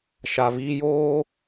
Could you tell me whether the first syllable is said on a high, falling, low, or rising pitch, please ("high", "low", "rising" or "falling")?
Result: low